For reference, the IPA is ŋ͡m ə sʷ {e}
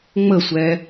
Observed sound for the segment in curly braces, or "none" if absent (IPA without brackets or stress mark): ɛ